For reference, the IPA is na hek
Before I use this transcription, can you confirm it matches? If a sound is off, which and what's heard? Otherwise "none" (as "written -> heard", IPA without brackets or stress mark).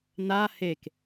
none